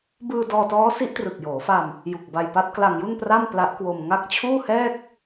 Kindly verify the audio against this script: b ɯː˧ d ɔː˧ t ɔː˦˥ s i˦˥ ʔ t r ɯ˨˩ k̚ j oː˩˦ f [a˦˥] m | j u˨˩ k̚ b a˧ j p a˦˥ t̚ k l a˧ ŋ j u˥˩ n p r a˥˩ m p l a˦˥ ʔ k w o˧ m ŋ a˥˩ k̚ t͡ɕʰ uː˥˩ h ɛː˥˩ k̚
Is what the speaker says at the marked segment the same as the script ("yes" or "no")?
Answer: no